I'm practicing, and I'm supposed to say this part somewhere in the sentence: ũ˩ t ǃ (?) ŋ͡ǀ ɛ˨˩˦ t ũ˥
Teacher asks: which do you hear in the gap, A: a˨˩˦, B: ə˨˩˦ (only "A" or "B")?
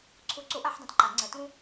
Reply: A